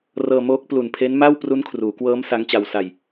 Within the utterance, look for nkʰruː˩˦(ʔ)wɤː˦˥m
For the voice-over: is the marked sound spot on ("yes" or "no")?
no